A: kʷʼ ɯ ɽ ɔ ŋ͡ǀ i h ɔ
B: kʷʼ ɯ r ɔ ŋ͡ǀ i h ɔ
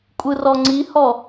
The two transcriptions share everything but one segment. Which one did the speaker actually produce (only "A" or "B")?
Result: B